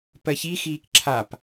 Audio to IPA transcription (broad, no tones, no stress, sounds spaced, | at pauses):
p ɜ ç i x iː k ǁʰ a p